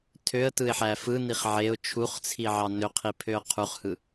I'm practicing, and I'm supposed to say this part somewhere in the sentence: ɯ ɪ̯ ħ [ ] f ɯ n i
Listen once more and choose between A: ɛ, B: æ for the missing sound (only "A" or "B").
B